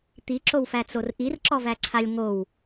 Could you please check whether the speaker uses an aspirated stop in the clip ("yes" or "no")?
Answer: yes